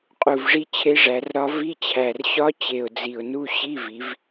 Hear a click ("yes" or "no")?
no